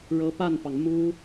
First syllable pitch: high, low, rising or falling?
rising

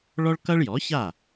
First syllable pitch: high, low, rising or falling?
high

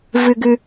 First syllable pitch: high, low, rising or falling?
high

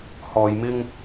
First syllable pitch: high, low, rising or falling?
low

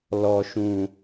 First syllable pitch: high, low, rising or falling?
high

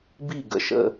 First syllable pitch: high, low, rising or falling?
falling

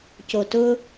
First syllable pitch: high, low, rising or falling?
low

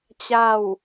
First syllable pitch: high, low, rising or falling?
falling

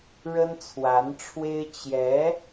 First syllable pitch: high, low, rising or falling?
high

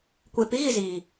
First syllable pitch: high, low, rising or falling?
low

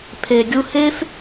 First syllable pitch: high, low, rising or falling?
low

